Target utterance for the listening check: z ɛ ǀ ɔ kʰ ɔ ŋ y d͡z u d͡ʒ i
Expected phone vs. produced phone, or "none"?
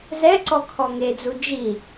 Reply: y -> e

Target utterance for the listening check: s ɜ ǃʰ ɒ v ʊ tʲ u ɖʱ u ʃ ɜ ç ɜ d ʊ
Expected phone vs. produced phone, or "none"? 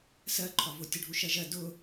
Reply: ç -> ʒ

